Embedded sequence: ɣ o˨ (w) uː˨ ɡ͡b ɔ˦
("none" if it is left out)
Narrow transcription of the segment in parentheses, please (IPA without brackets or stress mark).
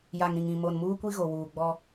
w